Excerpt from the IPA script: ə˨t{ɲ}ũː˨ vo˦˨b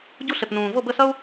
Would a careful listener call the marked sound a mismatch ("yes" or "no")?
yes